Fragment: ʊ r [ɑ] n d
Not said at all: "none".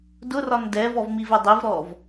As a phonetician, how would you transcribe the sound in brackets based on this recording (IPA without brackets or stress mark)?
ɒ